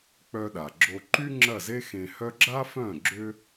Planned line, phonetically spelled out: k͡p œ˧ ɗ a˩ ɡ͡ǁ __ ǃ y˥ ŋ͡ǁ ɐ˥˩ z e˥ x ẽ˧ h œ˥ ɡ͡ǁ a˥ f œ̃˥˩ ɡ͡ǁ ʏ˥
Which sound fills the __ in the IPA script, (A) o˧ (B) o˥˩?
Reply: A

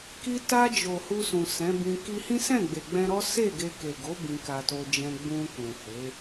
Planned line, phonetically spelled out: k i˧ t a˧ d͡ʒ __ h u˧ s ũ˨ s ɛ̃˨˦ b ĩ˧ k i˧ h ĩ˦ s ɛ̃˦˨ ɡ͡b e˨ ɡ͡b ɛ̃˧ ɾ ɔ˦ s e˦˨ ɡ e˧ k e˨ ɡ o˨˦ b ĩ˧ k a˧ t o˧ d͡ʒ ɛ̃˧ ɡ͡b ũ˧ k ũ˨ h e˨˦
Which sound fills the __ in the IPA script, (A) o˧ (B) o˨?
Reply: B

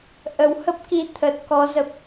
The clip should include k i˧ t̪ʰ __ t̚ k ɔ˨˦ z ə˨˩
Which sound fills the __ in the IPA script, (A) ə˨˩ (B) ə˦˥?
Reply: A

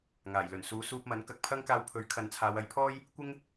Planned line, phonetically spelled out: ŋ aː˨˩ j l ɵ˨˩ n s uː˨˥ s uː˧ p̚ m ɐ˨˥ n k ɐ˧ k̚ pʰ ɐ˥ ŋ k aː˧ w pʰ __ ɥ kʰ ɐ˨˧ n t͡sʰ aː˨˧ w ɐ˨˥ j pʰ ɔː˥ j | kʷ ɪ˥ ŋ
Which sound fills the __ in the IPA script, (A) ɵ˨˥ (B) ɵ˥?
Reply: A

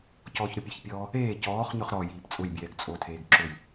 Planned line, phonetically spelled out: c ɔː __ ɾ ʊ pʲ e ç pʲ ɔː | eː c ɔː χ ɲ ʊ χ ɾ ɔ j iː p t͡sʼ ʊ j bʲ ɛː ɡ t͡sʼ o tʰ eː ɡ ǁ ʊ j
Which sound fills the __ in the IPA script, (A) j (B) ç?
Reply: B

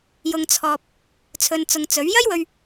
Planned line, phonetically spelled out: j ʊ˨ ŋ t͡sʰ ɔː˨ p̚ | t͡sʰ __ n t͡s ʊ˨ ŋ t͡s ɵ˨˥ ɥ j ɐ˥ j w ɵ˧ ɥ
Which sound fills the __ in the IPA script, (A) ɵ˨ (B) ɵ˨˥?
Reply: A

